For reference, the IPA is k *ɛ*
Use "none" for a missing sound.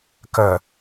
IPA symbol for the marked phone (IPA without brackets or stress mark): ɜ